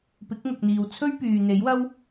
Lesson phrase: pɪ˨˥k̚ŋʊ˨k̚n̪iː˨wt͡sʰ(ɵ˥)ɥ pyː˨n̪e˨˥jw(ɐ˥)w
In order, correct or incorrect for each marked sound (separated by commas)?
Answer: correct, correct